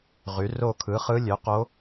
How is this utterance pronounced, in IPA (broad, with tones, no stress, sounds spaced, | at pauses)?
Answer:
ʁ y˩˥ r o˦˨ kʰ ɯ˩˥ χ ɯ˧˥ lʲ ø˩˥ q o˧˥